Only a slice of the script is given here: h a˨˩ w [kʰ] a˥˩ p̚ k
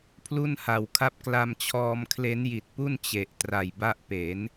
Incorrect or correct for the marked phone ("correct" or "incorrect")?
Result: correct